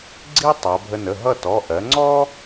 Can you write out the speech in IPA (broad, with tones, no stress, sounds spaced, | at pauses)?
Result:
ɡ͡ǀ i˥ tˤ ʌ˩˧ bʱ ə˧ n ə˩˧˩ ɦ ʌ˥˧ t ɔ˩˧˩ ʔ ɜ˩˧ ŋ͡ǀ ɔ˥